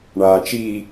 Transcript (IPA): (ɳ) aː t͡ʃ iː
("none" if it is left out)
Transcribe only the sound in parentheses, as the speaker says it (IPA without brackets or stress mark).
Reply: ɳ